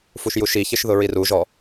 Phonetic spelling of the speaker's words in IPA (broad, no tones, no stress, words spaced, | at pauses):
fuʃjuʃiçɪʃ ðʊɹiruʒɔ